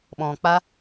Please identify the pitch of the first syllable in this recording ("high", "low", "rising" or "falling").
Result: low